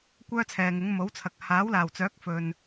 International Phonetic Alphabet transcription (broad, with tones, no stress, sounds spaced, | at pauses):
kʷ œː˥ t͡sʰ ɛː˨ ŋ ɪ˨˥ ŋ m o˨˥ w t͡sʰ ɐ˨ k̚ h aː˨˥ w l aː˨˩ w t͡s œː˨˥ k̚ f ɵ˨ n